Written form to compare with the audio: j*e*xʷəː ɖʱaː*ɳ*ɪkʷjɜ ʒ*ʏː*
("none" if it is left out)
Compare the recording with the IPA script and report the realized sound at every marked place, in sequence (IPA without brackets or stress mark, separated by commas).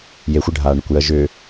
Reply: e, ɳ, ʏː